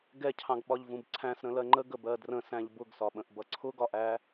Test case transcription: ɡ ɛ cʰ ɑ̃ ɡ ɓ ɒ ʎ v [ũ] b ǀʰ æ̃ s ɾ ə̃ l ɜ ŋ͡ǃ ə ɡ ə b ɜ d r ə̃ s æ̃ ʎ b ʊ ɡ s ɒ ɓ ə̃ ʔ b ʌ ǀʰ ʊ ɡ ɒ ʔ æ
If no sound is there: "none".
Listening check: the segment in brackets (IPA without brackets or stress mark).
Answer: ũ